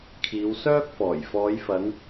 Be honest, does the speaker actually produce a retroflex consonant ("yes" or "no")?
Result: no